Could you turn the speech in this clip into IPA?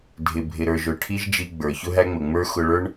dʱ ɪ˨ bʱ ɪ˨ ɾ ə˞˨ ʒ ʊ˨ ʈʰ i˦ ʒ d͡ʒ i˧ ɡ͡b ə˞˨ ç ʊ˦ ɦ æ˦ ŋ͡m ə˨ ŋ͡m ə˞˦ x ʊ˧ ɭ ə˞˦ ɳ

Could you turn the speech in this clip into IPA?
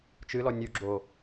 t͡ʃ ɨ l ɔ nʲ u ɡ͡ǁ o

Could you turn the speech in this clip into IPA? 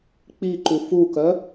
k͡p i ǃ u f u k œ

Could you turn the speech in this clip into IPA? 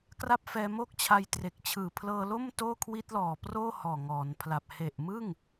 k r a˥˩ p̚ f ɛː˧ m o˥˩ k̚ t͡ɕʰ a˧ j t r e˨˩ k̚ t͡ɕʰ ɯː˨˩ pʰ l ɤː˧ l o˥˩ m t oː˥˩ kʰ w i˦˥ t̚ l ɔː˨˩ p r oː˥˩ h ɔː˨˩ ŋ ɔː˩˦ n pʰ l a˨˩ p̚ h e˨˩ ʔ m ɯ˥˩ ŋ

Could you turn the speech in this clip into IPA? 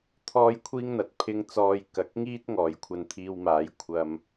t̪ʰ ɔː˧ j kʷʰ iː˧ ŋ n̪ ɐ˨ t̚ pʰ ɪ˧ ŋ t͡s ɔː˨ j k ɐ˨˥ k̚ ŋ iː˥ t̚ ŋ ɔː˨˧ j kʷʰ ɐ˧ n t̪ʰ iː˧ w m aː˨˥ j kʷʰ ɐ˨ m

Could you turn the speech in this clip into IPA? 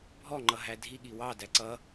bʱ ɔ ŋ͡ǃ ʌ ɦ æ dʱ i ɠ i w ɑ d æ ǀ ʌ

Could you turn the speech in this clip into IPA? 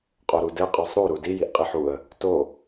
qʼ o ɾ u d ɘ qʼ ɔ sˤ ɾ u ɾ u d i j i ʔ qʼ i ħ u ə̯ | t o

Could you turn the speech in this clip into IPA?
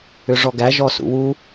ʏ ʐ ɔ ɡ æ ʒ ɔ s ṵ w u

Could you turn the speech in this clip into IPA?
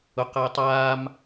ʊ q əː tˤ aː m

